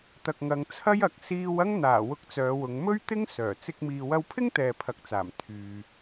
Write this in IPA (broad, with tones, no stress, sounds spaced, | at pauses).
t̪ ɐ˨ k̚ ŋ ɐ˨˧ ŋ t͡sʰ ɐ˥ j ɐ˨˥ k̚ s iː˧ w ɐ˥ ŋ n̪ aː˨˩ w ʊ˧ k̚ t͡s œː˨˧ w ʊ˨˧ ŋ m ɵ˥ ɥ t̪ ɪ˥ ŋ s œː˨˩ t͡s ɪ˧ k̚ m iː˨ w ɐ˧ w pʰ ɪ˥ ŋ t̪ ɛː˨ pʰ ɐ˨ k̚ t͡s aː˨˩ m t̪ʰ yː˨